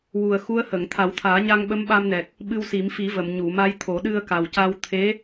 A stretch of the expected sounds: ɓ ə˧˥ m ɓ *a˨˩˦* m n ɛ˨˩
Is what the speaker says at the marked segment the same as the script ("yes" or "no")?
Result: no